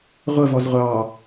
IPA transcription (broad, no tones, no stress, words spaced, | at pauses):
ʁʷəvɔz ʁʷɑ